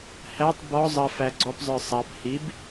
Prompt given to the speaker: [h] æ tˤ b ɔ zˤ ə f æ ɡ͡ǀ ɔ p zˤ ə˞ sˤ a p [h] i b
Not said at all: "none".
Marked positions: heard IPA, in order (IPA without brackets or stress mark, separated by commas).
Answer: h, h